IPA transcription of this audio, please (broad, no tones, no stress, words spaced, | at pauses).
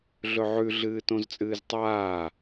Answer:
ɮɵʕʉ ɮɨːtõzt͡sʼɨːztˤaː